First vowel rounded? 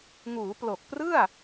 yes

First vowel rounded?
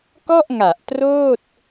yes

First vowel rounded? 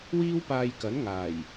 no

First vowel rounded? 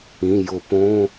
no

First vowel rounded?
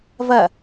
no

